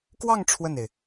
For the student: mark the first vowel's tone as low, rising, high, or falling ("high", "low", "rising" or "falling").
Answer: falling